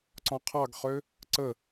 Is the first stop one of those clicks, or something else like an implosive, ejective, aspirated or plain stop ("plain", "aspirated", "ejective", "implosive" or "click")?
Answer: click